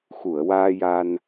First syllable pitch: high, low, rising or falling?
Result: low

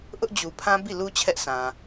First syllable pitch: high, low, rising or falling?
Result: high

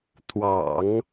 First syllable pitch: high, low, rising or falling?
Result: low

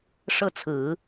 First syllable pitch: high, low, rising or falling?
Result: falling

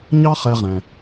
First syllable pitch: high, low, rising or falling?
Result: high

